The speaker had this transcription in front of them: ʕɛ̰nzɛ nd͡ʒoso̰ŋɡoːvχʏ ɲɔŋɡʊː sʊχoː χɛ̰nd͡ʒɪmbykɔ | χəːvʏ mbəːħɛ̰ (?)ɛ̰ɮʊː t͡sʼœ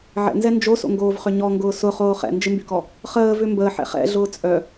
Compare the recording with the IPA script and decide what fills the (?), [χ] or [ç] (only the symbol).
χ